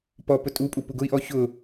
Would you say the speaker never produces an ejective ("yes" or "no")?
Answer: no